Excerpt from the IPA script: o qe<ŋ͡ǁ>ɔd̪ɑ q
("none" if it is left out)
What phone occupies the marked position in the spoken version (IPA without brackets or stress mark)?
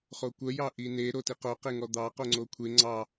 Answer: ŋ